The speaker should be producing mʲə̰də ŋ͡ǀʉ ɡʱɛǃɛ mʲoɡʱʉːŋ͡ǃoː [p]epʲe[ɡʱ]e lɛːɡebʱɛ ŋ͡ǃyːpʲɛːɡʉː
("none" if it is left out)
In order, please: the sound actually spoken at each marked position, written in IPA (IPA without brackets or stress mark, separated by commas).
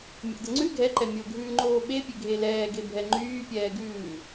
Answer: ɓ, ɡʱ